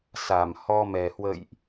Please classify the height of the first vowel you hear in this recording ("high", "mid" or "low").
low